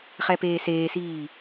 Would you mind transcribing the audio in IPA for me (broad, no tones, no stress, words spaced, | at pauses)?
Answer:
χɛpeːseːsiː